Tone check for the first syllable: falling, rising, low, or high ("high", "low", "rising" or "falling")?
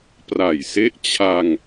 low